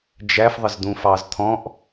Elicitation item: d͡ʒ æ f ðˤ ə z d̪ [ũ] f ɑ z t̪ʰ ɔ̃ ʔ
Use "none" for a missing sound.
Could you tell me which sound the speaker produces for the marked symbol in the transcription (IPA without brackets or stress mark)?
ũ